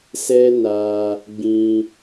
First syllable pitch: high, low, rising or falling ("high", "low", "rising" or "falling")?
high